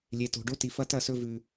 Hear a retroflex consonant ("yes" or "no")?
yes